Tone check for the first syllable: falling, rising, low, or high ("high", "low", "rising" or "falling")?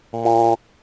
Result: high